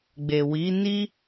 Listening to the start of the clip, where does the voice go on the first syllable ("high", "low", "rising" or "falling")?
low